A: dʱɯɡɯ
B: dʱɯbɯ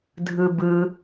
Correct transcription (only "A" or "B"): B